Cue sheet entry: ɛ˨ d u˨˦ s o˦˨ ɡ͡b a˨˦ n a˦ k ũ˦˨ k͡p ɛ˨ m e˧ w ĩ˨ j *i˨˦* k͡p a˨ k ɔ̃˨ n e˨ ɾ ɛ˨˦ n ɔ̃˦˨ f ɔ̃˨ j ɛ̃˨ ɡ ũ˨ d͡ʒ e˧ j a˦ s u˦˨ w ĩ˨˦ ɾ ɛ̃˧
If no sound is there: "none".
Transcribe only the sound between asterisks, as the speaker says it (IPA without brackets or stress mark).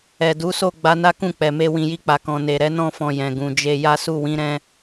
i˧